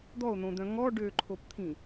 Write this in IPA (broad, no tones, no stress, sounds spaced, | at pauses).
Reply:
d̪ ɔ o̯ n̪ õ d̪ œ̃ ŋ ɔ ɖ ø ǃʰ o p t̪ʰ ĩ